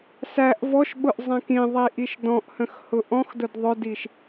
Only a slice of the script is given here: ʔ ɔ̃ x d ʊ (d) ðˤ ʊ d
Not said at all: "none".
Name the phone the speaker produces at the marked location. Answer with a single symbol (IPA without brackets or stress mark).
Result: d